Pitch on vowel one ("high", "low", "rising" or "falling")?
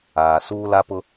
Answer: low